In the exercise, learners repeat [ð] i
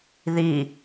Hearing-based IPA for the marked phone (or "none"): ð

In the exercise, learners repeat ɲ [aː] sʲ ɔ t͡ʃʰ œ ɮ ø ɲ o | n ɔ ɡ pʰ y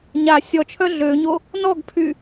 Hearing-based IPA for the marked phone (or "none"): a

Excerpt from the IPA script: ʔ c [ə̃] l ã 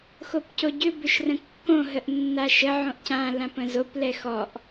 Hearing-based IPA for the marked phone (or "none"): ã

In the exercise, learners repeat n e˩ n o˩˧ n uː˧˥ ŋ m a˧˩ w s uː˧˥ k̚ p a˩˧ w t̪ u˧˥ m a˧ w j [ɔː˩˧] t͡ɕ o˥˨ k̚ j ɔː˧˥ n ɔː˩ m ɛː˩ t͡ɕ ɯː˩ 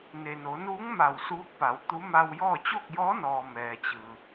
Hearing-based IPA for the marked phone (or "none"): ɔː˥˨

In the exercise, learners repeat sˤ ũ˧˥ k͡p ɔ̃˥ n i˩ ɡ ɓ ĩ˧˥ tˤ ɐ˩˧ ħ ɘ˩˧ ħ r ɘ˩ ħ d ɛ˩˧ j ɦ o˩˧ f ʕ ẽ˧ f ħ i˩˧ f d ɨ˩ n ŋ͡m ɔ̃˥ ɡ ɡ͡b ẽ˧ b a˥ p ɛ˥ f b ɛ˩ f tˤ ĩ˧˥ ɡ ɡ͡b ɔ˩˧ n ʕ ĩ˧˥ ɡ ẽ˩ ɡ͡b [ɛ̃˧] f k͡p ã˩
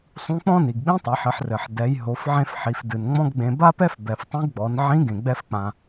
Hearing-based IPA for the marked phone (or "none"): ɛ˧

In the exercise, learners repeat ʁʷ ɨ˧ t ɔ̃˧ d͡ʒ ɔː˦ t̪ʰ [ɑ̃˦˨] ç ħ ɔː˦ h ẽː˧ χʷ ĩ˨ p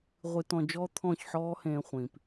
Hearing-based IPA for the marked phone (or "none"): ɔ̃˦˨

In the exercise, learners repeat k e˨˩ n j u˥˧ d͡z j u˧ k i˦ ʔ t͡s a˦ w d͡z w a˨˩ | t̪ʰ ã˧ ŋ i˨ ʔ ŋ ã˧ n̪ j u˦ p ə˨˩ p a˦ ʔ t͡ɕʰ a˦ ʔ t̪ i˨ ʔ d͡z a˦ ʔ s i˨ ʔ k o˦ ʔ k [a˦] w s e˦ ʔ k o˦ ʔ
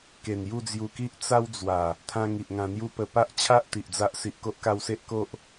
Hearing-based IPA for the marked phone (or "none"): a˧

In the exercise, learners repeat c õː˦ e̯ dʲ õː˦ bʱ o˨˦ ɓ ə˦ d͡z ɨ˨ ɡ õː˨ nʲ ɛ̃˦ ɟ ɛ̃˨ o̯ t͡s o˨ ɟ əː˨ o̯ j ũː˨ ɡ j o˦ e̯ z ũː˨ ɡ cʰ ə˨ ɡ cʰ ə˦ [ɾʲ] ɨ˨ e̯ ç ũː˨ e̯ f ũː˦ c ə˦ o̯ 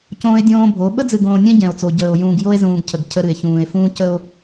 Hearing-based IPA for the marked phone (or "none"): ɾ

